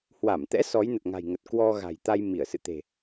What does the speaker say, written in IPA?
h w a˧˩ m t̪ ɛ̰˧˥ s ɔ˨˦ j n ə˨˩ t̚ ŋ a̤˨˩ j ŋ ə˨˩ t̚ k w ɔ˧ ɣ a̤˨˩ j t̪ a˧ j m i˧˩ ə̯ s ɨ̰˧˨ t̪ e̤˨˩

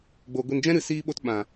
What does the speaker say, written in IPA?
ɡ͡b o˨ ɡʷ i˨ n d͡ʒ ɛ̃˦ ɾ ɨ˨ s iː˧ ɓ o˧ t ɓ ã˨

